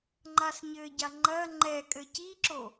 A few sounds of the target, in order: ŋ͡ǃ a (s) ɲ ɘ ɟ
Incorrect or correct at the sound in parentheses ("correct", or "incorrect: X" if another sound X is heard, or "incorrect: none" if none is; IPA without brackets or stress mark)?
correct